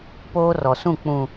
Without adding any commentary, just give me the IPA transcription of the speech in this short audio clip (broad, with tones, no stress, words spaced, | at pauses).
poː˦rɔ˨sũ˦˨ k͡pũ˨